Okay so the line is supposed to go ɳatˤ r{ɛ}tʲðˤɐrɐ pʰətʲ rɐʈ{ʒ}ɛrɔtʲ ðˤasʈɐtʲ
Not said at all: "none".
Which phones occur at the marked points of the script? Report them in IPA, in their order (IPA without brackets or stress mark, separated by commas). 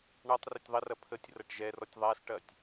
ɛ, ʒ